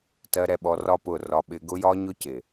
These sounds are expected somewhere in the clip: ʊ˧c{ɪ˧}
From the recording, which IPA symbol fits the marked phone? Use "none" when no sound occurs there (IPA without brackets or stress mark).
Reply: ɪ˨